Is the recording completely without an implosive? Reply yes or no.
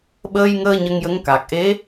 no